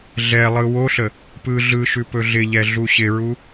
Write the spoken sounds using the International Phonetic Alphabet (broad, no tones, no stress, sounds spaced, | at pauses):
ɮ ɛ lˠ ɯ w o ɬ ə | p ɯ ɮ ɯ ʃ ʉ p ɵ ɮ ɪ ʎ ɛ ɮ u ɕ ɪ ɹ u